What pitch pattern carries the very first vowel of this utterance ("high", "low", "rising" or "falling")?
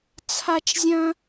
high